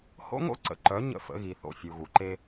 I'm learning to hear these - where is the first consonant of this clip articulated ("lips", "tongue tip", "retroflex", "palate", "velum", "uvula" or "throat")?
throat